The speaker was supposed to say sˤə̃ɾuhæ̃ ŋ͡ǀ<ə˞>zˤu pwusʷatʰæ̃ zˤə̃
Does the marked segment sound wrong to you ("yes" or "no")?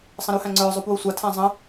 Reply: no